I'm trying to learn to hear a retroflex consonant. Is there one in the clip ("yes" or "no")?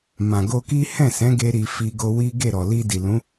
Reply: no